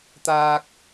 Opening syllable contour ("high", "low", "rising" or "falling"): high